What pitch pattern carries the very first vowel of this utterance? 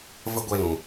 high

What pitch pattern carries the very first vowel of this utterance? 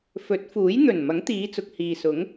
rising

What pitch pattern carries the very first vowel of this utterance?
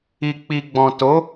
low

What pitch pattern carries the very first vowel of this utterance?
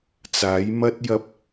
rising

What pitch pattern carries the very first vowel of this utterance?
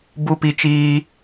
high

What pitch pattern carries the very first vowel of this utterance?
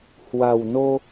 low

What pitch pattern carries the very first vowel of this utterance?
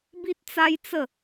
high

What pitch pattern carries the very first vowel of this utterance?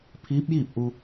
rising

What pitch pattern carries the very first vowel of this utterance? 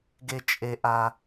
high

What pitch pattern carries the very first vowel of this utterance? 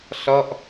falling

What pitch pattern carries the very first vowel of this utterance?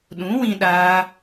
rising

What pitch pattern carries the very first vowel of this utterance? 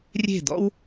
falling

